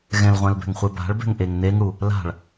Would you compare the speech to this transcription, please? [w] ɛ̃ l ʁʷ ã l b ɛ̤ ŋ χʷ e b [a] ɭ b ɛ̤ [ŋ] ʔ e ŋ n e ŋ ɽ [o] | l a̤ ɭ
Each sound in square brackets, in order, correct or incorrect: incorrect, incorrect, correct, incorrect

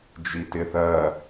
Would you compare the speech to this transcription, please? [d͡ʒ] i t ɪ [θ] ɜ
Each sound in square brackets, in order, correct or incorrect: correct, correct

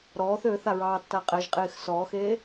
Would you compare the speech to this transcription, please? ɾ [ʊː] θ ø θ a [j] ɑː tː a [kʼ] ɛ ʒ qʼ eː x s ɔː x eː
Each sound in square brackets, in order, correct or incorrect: incorrect, incorrect, incorrect

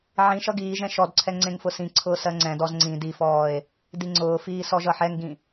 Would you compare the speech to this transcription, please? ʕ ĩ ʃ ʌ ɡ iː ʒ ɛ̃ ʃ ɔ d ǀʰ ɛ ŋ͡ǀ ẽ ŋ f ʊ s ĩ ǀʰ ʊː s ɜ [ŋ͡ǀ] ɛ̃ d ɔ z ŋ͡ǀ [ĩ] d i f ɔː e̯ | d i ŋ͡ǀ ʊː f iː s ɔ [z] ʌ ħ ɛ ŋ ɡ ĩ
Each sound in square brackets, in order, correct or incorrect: correct, correct, incorrect

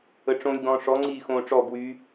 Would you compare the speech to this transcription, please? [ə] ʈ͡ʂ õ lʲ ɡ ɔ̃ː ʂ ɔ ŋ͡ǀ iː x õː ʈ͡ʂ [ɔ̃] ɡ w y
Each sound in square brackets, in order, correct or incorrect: correct, incorrect

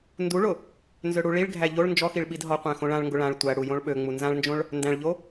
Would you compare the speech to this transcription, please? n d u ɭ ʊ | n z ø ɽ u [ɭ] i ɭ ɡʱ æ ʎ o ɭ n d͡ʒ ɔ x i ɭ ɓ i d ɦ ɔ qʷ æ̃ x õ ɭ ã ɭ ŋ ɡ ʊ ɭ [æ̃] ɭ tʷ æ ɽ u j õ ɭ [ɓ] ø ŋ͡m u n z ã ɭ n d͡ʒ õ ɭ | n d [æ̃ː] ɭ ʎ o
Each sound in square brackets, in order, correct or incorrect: correct, incorrect, correct, incorrect

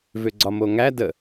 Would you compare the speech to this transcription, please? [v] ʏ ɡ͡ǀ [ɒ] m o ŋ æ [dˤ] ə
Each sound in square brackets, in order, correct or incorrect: correct, correct, incorrect

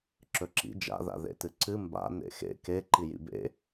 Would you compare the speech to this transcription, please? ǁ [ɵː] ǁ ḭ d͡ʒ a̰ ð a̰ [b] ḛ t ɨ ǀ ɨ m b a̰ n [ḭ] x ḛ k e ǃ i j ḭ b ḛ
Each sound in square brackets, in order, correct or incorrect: incorrect, incorrect, incorrect

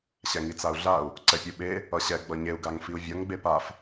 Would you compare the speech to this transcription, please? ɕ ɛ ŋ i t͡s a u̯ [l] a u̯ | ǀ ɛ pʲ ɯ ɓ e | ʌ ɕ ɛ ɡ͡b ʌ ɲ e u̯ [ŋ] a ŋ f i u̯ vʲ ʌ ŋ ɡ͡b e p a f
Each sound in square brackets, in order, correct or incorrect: incorrect, incorrect

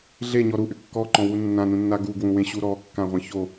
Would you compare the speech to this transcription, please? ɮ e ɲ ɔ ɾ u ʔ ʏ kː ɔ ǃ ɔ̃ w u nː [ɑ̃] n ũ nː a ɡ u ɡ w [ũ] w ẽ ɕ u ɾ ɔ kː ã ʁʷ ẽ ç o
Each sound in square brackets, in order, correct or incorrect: incorrect, correct

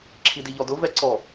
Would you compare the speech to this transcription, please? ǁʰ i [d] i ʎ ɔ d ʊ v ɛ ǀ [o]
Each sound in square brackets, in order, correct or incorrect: correct, incorrect

